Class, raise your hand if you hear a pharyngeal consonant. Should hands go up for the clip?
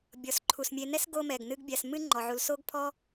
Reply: yes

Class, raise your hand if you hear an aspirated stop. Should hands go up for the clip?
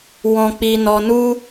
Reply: no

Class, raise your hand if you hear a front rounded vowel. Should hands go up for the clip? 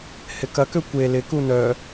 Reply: yes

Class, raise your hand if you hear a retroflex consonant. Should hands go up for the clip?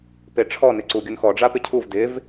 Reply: yes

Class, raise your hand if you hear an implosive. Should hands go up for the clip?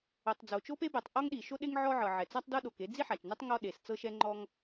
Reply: yes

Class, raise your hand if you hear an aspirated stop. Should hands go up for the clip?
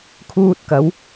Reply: yes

